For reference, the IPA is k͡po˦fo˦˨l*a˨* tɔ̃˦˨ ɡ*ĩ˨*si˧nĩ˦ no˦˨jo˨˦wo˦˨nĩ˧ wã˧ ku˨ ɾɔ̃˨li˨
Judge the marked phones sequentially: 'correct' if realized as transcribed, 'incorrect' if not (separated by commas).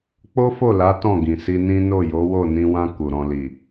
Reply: incorrect, correct